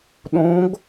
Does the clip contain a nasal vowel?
yes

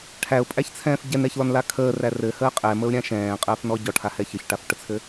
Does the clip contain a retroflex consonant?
yes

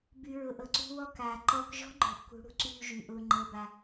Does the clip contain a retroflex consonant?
yes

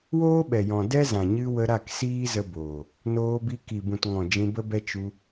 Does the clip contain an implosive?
yes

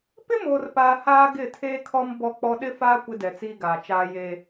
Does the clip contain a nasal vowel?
no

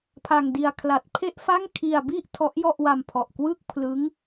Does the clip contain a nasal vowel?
no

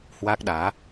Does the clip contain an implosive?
yes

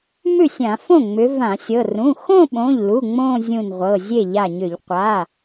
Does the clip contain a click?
no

